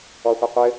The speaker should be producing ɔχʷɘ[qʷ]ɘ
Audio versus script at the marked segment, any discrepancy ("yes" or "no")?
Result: no